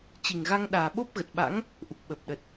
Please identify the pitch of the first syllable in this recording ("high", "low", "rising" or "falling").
low